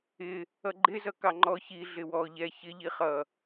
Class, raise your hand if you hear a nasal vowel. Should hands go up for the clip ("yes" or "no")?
no